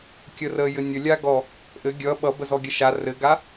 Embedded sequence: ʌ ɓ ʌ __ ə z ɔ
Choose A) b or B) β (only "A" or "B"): A